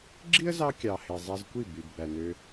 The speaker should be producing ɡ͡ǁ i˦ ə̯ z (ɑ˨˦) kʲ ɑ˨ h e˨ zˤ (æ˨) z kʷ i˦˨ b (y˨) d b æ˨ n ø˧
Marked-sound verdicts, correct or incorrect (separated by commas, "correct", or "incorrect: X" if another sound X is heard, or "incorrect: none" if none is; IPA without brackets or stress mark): incorrect: ɑ˧, incorrect: æ˧, correct